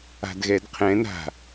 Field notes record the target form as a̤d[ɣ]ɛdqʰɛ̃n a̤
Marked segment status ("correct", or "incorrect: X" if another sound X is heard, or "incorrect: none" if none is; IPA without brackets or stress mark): correct